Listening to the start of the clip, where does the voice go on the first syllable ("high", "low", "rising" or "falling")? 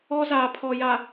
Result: high